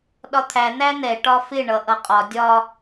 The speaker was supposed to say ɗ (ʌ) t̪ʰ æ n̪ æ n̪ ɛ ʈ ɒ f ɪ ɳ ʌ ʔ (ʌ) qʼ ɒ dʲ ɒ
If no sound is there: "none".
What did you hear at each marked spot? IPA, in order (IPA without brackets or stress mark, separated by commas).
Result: ɒ, ʌ